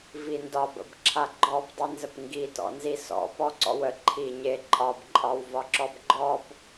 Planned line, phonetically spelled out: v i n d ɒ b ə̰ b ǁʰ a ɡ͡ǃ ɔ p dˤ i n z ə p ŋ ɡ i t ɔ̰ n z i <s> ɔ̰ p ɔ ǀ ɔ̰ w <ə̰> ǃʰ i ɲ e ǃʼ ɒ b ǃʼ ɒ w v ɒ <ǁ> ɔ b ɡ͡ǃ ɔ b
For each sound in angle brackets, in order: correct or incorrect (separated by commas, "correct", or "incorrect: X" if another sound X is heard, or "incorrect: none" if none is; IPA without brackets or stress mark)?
correct, incorrect: ə, correct